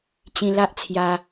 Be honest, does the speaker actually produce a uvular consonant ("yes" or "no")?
no